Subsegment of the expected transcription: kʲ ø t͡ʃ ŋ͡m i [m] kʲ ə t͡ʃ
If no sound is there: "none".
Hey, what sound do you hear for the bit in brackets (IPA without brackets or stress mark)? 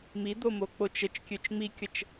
none